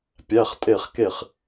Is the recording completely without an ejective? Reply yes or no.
no